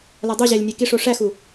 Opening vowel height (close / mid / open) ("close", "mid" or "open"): open